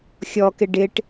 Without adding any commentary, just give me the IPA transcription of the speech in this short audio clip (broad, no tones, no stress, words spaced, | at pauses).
xʲɔkɪ ɖɪʈ